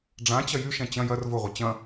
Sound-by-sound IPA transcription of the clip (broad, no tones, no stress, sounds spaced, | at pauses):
ɖ͡ʐ ã t͡ɕ ɐ j y ʃ ɛ̃ t͡ɕ ɐ̃ j ɐ r v ʊ ʁʷ ɐ t͡ɕ ɐ̃